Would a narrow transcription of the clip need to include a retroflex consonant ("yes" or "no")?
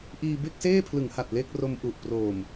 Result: no